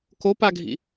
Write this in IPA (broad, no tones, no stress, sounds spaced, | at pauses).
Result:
k o p a ɡʱ ḭ